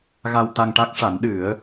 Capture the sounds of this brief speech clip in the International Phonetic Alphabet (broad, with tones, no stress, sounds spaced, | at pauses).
ɣ a˧ w t̪ a˧ ŋ ʈ a˦˥ k̚ ʂ a˨˩˦ n ɗ ɨ˨˩˦ ə̯